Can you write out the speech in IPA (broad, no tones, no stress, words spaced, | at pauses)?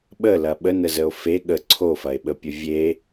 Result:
ɓəlɐ ɓənəzəo̯ fe ɠə ǀʰofɐe̯ɓəpʲə vʲe